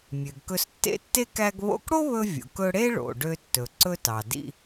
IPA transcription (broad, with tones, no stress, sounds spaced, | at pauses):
mʲ ø˩ ɡ k ɵ˧ s tː ḛ˥ tː e˥ k æ˧ ɡ β o̰˧ k ɽ o˥ β ɵ˧ vʲ o̰˩ k ɵ˧ ɽ e˥ ɭ o̰˩ ɖ ø˧ tː ɵ˩ ǀ ɵ˧ t ɑ˩ d ḭ˧